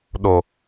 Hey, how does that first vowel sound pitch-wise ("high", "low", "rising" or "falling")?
low